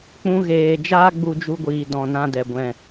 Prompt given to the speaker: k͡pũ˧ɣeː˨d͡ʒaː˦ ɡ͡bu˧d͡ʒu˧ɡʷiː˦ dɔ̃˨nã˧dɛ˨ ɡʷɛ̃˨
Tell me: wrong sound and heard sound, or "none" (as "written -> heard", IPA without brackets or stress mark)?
iː˦ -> iː˨